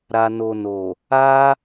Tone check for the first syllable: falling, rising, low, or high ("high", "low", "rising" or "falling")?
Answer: low